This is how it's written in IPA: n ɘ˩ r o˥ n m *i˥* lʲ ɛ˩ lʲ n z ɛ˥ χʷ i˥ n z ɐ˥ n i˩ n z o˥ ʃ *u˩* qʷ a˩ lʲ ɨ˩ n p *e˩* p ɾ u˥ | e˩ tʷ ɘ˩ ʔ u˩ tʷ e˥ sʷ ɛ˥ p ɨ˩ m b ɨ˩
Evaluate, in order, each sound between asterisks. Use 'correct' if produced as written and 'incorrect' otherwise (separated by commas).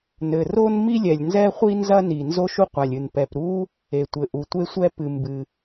correct, incorrect, incorrect